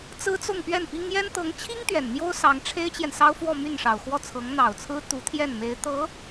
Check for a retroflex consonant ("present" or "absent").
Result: present